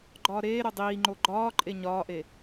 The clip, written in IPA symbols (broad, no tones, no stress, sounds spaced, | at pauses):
ɡ͡ǃ ɒː ɾ eː ɾ o dˤ iː ŋ͡ǃ o ɡ͡ǃ ɒː ǃʼ e ɲ ɒː ʔ e